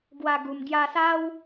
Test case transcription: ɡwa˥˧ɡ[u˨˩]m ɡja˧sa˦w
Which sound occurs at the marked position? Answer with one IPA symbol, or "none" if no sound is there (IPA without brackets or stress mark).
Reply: u˨˩